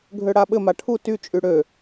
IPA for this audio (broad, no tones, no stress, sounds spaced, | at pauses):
ɡʱ ø ɽ a ɓ ɘ m a ʈʰ u t y t͡ʃʼ y ɽ ø